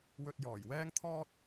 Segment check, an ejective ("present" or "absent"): absent